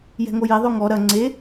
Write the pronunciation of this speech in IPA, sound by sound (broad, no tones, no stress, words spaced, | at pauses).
jɛ̤ŋoje ðˤoŋɔ ɾɐ ŋ͡ǀe